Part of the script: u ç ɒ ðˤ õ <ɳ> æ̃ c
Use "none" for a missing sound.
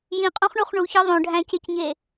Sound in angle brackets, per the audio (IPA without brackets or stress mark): ɖʱ